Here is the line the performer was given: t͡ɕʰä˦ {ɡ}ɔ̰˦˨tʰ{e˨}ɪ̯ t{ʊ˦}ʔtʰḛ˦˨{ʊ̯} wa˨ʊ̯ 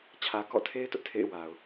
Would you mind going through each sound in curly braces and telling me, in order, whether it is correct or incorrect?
incorrect, incorrect, correct, incorrect

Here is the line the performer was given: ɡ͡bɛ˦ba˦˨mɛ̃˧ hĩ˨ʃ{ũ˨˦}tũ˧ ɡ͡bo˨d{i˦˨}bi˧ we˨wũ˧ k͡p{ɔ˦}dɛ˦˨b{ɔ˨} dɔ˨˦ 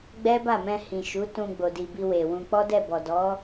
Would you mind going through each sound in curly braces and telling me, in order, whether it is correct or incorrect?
incorrect, incorrect, correct, correct

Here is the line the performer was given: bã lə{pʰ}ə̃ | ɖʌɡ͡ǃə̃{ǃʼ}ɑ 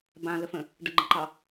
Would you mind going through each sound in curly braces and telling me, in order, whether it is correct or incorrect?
incorrect, incorrect

